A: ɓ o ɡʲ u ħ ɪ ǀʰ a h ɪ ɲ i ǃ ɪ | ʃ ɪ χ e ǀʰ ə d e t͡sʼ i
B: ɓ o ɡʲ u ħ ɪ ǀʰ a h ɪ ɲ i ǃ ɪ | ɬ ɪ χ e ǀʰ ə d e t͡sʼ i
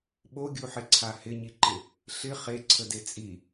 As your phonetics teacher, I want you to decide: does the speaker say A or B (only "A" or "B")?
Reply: B